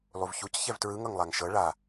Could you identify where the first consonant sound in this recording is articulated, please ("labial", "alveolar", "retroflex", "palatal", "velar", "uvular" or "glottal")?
alveolar